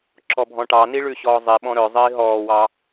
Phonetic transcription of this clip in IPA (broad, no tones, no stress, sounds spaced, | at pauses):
ǁ ɔ bʱ ɔ̃ ʈ ɑ n i ɭ ʉ ɕ ɔː zˤ i ɓ ɔ̃ ɾ œ zˤ iː ɦ ɔː w ɑ